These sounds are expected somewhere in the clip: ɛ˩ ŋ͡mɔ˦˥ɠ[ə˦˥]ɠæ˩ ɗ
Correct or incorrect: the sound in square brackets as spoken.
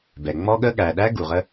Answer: correct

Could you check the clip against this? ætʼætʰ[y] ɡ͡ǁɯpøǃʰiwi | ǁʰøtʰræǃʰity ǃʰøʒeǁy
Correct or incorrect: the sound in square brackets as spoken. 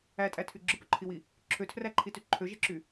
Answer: correct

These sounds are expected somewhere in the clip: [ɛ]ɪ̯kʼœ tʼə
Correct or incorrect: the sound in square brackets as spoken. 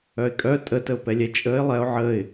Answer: incorrect: œ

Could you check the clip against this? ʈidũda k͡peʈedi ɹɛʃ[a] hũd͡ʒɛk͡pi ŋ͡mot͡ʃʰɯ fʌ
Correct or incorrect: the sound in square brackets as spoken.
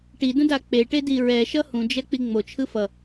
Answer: incorrect: ʌ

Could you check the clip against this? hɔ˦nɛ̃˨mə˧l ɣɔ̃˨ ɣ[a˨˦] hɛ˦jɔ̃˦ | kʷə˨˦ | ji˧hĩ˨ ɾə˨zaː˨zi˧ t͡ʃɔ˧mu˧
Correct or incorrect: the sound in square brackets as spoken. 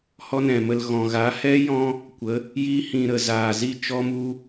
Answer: correct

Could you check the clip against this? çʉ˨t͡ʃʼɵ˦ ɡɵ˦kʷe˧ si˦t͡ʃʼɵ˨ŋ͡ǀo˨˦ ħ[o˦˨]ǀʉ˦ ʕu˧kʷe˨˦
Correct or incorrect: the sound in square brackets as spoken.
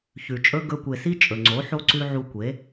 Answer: incorrect: o˦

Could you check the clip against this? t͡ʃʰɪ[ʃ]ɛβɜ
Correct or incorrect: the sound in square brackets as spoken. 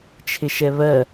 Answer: correct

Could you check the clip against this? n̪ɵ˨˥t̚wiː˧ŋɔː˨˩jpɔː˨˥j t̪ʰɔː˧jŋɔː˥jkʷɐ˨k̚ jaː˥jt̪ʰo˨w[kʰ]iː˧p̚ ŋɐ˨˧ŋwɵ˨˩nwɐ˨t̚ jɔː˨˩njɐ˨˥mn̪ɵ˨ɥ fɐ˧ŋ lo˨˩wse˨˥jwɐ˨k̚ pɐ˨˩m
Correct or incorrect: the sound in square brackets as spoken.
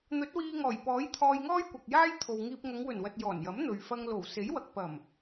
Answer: incorrect: ŋ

